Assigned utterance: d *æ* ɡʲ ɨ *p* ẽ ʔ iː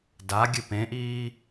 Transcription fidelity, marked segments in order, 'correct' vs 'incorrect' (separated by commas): incorrect, correct